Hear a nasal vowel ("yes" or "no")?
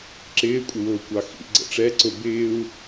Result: no